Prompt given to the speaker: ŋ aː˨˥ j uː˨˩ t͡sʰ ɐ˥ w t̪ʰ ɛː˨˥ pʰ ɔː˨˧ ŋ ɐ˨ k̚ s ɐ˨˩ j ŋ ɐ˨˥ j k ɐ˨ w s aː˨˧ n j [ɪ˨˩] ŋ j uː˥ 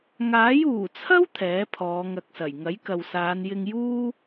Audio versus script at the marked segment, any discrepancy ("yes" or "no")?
yes